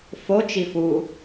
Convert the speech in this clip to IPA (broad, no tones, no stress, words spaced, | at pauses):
fo t͡ʃifu